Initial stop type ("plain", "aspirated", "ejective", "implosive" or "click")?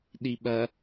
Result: implosive